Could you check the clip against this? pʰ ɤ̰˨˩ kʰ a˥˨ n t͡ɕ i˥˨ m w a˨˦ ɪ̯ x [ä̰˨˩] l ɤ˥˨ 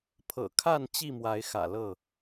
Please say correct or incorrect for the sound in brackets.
correct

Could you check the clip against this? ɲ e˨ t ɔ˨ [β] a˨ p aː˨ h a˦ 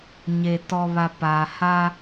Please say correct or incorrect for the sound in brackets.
correct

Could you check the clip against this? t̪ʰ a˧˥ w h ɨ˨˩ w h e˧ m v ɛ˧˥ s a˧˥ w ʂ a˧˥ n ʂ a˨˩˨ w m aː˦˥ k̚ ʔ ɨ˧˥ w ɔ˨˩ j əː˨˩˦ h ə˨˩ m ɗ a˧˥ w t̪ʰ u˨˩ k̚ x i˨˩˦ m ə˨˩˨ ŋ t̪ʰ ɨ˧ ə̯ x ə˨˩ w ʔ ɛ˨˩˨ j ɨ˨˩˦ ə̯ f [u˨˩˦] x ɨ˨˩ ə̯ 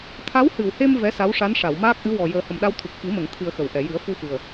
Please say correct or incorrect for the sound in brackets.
incorrect: u˧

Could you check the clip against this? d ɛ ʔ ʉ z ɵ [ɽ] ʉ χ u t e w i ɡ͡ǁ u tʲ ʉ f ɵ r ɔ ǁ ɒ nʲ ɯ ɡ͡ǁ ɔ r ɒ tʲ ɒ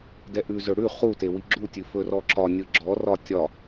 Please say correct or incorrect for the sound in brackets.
correct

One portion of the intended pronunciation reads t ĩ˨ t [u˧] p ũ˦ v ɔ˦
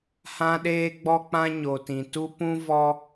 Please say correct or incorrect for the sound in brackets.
incorrect: u˦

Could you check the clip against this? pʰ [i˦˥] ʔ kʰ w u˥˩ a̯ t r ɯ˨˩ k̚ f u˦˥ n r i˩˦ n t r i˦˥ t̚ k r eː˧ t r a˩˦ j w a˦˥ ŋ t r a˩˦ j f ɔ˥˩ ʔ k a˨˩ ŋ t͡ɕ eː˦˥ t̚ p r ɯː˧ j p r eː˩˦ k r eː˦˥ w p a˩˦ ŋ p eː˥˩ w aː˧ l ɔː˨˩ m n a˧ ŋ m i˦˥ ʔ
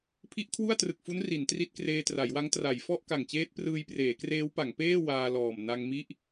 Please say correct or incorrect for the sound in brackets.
correct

